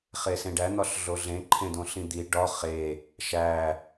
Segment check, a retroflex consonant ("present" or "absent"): present